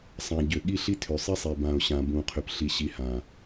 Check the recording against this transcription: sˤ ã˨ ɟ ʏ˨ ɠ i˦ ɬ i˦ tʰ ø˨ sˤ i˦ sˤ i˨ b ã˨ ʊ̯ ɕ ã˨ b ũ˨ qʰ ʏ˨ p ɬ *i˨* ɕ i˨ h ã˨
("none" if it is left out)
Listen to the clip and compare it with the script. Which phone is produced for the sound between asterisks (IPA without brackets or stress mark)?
i˨